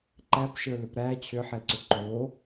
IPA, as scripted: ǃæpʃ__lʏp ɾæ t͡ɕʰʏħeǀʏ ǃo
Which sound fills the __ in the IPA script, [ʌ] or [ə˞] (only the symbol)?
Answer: ə˞